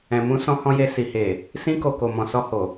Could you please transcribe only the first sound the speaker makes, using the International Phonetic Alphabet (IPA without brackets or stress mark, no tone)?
ɛ̃